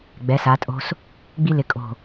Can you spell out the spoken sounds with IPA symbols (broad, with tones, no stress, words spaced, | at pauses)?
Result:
ɡ͡bɛ˩˥sa˩˥tʼo̤˦s | ɡ͡bi˦lɪ˩˥kʼo̤˧˩